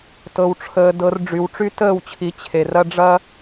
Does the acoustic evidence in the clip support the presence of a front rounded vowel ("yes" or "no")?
yes